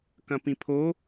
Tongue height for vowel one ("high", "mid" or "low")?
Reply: low